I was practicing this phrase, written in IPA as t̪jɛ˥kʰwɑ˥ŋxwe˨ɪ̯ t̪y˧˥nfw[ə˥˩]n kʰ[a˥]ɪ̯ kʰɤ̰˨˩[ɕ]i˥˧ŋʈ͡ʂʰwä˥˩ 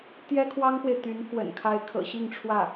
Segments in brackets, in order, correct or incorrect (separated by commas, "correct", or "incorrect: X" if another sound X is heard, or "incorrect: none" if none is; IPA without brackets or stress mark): incorrect: ə̰˨˩, correct, correct